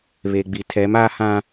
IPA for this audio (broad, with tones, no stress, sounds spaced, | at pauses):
β e˨ ɡ͡b i˨ tʰ ɛ˨˦ m a˦ h ã˦